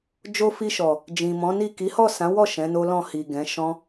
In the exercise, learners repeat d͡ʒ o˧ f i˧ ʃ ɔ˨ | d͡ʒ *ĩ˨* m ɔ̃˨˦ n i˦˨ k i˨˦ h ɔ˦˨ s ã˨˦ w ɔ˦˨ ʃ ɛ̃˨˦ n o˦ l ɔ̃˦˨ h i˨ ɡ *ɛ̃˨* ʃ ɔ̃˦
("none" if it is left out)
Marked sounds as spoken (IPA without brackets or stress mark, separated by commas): ĩ˨, ɛ̃˨˦